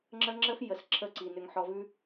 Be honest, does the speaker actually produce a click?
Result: yes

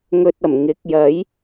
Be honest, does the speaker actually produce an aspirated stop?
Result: no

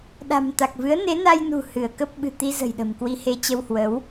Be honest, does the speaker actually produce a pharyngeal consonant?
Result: no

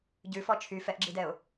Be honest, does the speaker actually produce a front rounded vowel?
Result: yes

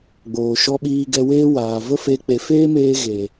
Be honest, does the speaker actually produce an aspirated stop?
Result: no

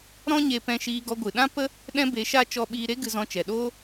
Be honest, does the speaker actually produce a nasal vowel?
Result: yes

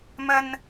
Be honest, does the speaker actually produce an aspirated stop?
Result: no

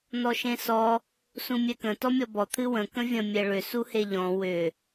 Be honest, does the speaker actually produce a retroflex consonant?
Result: yes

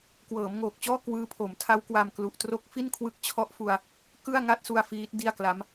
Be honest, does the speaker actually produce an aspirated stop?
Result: yes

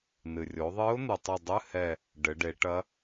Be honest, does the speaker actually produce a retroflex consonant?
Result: yes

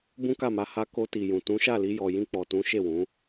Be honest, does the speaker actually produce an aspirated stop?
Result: no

